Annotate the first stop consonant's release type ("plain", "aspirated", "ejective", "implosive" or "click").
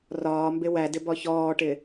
plain